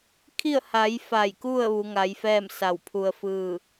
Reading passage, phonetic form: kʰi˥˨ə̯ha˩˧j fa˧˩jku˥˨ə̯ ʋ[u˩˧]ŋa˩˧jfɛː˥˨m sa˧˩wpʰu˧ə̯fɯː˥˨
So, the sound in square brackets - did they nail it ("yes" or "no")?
yes